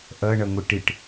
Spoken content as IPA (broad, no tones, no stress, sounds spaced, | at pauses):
ʔ ʌ ɳ ʌ ŋʷ ə ʈ ɪ ʈ